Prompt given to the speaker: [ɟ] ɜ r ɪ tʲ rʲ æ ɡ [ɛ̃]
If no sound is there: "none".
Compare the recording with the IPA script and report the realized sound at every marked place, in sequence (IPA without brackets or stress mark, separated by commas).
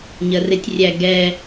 ɲ, ɛ